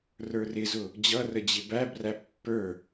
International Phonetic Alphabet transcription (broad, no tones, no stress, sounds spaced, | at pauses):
r ə˞ r ɪ z ʊ | d͡ʑ ʌ r ə d͡ʑ ɪ b æ b r æ pː ə˞